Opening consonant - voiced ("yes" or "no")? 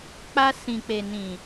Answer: no